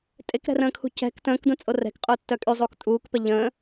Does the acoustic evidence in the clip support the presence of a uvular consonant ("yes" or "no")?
yes